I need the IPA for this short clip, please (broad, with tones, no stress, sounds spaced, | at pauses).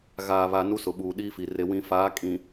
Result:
ɣ aː˨ β a˨ n u˦ s ʊ˨ ɓ uː˨ ɗ i˦ f i˨ r e˨ w ĩ˨ f aː˨˦ kʼ ĩ˨